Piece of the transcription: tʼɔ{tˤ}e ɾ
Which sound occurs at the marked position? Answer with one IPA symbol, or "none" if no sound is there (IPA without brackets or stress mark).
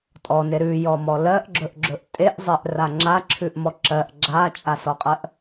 n